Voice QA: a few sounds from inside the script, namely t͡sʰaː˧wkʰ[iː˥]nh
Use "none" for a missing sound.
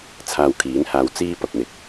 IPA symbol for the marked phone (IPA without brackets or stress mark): iː˨˥